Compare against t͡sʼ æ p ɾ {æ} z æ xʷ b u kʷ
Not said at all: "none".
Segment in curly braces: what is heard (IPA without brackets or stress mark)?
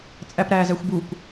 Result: æː